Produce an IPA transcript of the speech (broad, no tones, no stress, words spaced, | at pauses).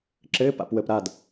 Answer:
ǁɘːp a̰pwəp ɾad